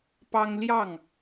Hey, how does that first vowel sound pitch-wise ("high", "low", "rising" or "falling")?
high